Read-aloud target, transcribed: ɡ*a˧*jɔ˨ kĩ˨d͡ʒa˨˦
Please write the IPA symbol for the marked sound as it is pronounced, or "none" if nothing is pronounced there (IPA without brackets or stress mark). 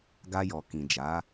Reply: a˧